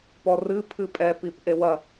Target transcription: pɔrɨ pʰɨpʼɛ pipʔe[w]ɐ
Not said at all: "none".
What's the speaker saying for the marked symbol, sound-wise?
w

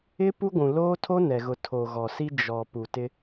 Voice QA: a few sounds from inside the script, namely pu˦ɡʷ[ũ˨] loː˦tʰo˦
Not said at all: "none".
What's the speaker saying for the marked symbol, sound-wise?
ũ˨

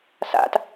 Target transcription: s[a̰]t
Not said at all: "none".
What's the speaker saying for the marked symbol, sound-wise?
a̰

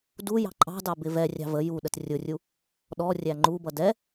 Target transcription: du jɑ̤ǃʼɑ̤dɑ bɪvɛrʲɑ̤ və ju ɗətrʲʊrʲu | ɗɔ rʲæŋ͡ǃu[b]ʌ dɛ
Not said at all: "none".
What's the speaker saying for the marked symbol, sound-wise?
b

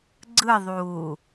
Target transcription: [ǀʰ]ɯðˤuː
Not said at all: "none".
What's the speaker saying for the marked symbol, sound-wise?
ɡ͡ǀ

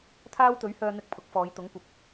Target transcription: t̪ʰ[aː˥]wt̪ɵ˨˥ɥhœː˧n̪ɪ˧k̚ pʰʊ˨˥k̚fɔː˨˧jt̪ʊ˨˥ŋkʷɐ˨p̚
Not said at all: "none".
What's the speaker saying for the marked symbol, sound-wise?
aː˥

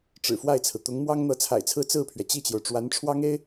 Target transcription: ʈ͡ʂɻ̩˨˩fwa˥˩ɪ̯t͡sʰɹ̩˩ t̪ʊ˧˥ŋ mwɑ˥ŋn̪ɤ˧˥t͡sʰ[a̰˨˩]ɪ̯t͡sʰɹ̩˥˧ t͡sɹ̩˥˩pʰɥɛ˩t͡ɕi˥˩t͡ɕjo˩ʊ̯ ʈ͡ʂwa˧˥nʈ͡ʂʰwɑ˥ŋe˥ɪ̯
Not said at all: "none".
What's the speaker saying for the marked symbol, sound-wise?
a̰˨˩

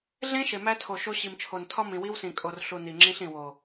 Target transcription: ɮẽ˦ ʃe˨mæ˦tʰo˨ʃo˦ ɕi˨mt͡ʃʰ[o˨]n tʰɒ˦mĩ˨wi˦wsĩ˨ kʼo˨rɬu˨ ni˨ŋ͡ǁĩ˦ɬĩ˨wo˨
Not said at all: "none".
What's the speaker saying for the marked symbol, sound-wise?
o˨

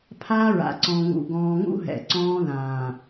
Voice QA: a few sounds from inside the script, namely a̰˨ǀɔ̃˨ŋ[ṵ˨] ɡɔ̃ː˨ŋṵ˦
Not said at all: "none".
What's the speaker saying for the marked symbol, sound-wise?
ṵ˨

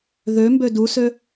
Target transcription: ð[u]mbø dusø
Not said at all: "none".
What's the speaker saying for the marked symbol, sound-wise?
ø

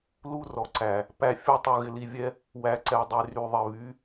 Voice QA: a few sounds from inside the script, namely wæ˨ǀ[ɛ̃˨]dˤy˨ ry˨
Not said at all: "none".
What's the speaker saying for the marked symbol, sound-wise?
ɛ˨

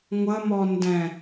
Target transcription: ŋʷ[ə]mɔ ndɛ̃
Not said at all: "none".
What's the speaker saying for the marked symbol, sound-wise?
ə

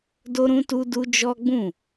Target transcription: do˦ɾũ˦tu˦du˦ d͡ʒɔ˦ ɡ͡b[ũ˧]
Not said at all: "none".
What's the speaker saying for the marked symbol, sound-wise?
ũ˦˨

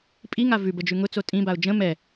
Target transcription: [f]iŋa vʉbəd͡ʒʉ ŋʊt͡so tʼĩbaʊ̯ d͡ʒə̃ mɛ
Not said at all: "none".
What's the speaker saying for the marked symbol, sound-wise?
pʼ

